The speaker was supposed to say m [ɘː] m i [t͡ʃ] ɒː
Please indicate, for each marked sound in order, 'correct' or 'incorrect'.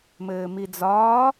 correct, incorrect

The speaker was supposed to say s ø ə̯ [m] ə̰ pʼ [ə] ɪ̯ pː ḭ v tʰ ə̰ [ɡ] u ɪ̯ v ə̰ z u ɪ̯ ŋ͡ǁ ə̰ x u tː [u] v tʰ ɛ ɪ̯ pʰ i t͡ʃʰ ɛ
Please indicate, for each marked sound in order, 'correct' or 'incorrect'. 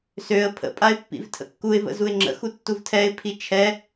incorrect, incorrect, incorrect, correct

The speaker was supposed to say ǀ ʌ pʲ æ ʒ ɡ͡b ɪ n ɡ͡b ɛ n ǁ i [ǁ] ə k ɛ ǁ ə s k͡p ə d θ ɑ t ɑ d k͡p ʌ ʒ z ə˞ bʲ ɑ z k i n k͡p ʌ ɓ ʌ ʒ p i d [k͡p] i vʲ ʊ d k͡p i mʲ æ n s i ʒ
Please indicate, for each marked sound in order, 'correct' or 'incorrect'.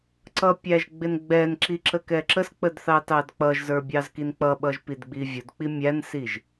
correct, incorrect

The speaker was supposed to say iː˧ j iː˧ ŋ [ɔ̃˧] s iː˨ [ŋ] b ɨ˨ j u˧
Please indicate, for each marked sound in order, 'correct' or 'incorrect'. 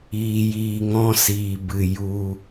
incorrect, incorrect

